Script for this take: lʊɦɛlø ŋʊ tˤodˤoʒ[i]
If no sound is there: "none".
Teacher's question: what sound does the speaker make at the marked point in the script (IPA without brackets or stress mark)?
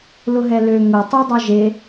e